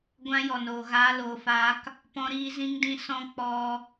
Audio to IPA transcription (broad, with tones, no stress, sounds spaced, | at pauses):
ɡʷ ã˦ j ɔ˨ n o˨ ɣ aː˧ l oː˨ f aː˧ k | p ɔ̃˧ ɾ iː˧ z ĩ˦ ŋ d ĩ˦ s ɔ̃˦ k͡p ɔ˧